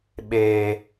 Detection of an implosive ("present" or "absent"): present